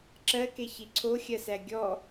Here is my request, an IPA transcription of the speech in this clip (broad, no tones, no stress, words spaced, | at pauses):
ǁɜkeçi ǀʰoxʲɜsæ ɡʲɔ